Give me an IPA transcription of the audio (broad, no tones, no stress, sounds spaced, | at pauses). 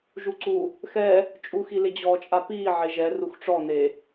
ʒ u ǀ u | x ɛ | t͡ʃʼ u x i l ɪ d͡ʑ ɔː t͡ʃʼ a p iː ʕ e ʒ ɛ r u x ʈ͡ʂ ɔ n e